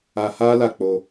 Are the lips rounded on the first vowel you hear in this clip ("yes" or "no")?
no